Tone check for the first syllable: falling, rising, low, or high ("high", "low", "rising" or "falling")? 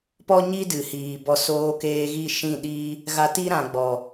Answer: high